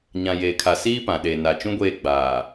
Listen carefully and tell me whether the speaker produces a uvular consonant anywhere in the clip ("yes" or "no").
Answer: no